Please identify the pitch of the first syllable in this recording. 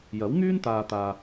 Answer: rising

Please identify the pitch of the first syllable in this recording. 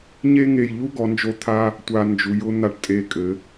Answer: high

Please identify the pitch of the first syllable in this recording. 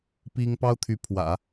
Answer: high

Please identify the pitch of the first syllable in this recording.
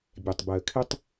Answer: low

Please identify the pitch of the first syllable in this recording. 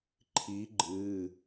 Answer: rising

